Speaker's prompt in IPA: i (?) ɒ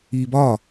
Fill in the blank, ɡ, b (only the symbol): b